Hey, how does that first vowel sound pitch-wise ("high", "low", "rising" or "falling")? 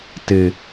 low